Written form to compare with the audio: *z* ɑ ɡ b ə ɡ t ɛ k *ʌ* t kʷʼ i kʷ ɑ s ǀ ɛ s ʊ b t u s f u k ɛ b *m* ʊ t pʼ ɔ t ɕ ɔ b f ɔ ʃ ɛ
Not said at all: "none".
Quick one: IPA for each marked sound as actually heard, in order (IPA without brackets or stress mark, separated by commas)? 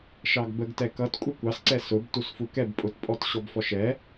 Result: ʃ, ʌ, pʼ